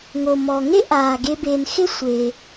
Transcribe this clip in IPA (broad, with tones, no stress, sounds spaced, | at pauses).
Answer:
ŋ o˩ m ɔ˩ ŋ e˥ ʔ aː˩ ɡ e˨ b eː˩ n x ɪ˦ sʷ e˩